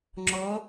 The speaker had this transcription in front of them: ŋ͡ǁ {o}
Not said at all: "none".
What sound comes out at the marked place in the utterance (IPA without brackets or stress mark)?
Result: ɔ